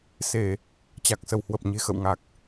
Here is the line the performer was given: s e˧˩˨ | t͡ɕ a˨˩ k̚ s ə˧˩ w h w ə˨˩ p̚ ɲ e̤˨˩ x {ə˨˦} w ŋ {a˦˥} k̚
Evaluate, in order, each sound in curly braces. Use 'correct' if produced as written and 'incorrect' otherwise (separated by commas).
incorrect, incorrect